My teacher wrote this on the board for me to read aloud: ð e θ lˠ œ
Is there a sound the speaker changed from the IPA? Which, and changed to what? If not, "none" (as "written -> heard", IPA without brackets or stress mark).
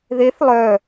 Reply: none